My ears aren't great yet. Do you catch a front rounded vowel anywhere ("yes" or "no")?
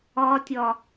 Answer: no